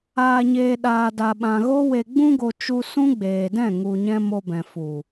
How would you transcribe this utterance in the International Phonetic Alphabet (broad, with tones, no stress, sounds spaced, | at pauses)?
aː˨ ɲ eː˨ ɗ aː˨ d a˨ ɓ ã˨ ɣ o˦ w e˨ ɡ͡b ũ˧ ɡ o˨ t͡ʃ u˧ s ũ˦ ɡ͡b eː˨ d ɛ̃˦˨ ŋ u˨ ɲ ɛ̃˧ m o˧ b ɛ̃˨ f u˨